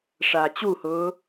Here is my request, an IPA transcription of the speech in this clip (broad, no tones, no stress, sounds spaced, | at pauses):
ʂ aː t͡ɕ u h ʊː